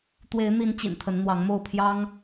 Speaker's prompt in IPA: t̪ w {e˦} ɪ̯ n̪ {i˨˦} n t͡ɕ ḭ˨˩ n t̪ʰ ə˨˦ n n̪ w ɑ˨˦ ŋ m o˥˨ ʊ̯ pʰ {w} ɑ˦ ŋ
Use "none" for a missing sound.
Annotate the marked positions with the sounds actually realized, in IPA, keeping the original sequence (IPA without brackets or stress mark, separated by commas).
e˨˦, i˨˦, j